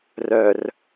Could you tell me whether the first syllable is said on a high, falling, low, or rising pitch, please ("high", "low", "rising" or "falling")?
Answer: low